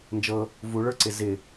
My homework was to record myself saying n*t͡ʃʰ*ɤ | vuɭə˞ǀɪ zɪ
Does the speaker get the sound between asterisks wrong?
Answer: yes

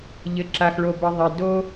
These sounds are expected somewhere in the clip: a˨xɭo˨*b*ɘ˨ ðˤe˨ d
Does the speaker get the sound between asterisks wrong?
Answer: no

